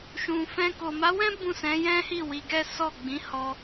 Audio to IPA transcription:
ʃ ũ˨ f ɛ̃˧ k o˨ m a˨˦ w ɛ̃˦ b ũ˦˨ s ɛ̃˨˦ j ɛ̃˦ h i˦˨ w i˧ ɡ ɛ˦ s ɔ˦˨ ɡ͡b ĩ˨˦ h ɔ˧

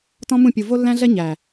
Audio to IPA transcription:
t ɔ̃˦ m ũ˦˨ pʲ u˨ v o˦ lː æ̃˦ ɮ ɛ˦ ɲ æ˨

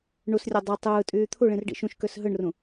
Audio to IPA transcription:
ɳ u s rʲ o dˤ u tˤ ɯː tʼ yː t̪ʰ u ɭ ĩ r ɖ ḭ ʃ ũ ʃ k ø s ɦ ɯ ɳ r ũ

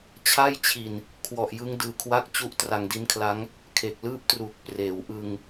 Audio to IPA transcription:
t͡ɕʰ a˥˩ j t͡ɕʰ i˨˩ n | kʰ w ɔ˨˩ ʔ j ɯ˦˥ ŋ d ɯː˧ kʰ w a˥˩ k̚ t͡ɕ u˦˥ ʔ t r a˧ ŋ d i˦˥ n kʰ l a˦˥ ŋ | kʰ e˨˩ k̚ l ɯː˥˩ p̚ t r uː˨˩ k̚ p r eː˩˦ w ʔ ɯ˧ ŋ

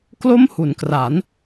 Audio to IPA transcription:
k l o˥˩ m h u˩˦ n k r a˩˦ n

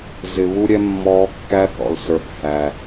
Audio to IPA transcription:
z ɪ˨ β u˦ ɾʲ ɛ˦ mː ɔː˧ kː æ˧ θ ɔ̰˨ l s ə˞˨ θ h æ˨

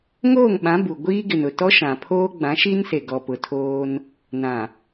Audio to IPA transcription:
ŋ oː˦˨ ŋ ɓ ã˨˦ b u˨ ɡʷ iː˦ ɡ ɪ˨ n ʊ˨ t ɔ˦ ʃ ã˨ pʰ oː˦ ɡ͡b ã˨˦ ʃ i˦ n s e˨ ɡ ɔ˨ p ʊ˨ tʰ oː˦ n | n ã˨

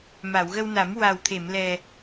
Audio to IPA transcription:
m a˨˩˨ w ɣ ə˧ w n a˨˩˦ m w a˨˩ w t̪ʰ e˨˩˨ m l ɛ˨˩

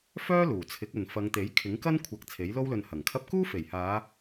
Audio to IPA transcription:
f œː˥ l uː˨˩ t͡sʰ ɪ˨˥ k̚ ɵ˨ n f ɐ˨˧ ŋ t̪ e˨˥ j kʰ ɪ˨˥ ŋ k ɐ˥ n kʷʰ ɐ˨ k̚ t͡sʰ e˨˥ j l o˥ w l ɵ˧ n h ɐ˨˩ ŋ kʰ ɐ˥ p̚ k uː˥ f e˨˩ j h aː˨˧

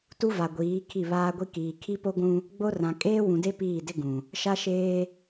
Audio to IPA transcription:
t u˦ v a˨ ɡʷ iː˨˦ kʰ i˦˨ β aː˦ ɡʷ i˦ k iː˨ kʰ i˦ p o˦ ɡʷ ũ˦ | ɡ͡b o˦ r ã˨ kʼ eː˦ w ũ˨ d e˦ p iː˦˨ d ɪ˦ ɡ ũ˨ | ʃ a˦ ʃ eː˦

